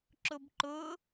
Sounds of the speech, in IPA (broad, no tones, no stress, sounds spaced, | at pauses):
ǁ ʊ b ǃ ʊ